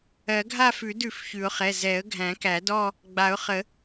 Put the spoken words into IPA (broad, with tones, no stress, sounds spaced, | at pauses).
ɜ˨˩˦ ɡʱ a˥˧ f ʉ˨˩˦ d ʉ˨˩˦ f ç ʉ˨˩˦ ʊ̯ χ ɛ˩˧˩ z ɛ˨˩˦ ə̯ ɡʱ æ̃˨˩˦ k æ˨˩˦ d ɔ˥˧ | ɡ͡b a˨˩˦ ʊ̯ χ ə˨˩˦